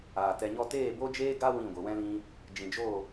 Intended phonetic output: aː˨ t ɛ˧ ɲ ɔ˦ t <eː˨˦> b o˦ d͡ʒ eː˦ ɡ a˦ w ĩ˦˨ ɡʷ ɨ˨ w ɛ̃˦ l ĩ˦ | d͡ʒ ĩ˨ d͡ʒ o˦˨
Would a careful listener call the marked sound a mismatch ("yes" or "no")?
yes